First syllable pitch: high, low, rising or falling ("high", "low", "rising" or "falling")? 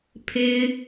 high